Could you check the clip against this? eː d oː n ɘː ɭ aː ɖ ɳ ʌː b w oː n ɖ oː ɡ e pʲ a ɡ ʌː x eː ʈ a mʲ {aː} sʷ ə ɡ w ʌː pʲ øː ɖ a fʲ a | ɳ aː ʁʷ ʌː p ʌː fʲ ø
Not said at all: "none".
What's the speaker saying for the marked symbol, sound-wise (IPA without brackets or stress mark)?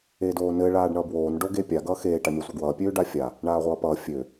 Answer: a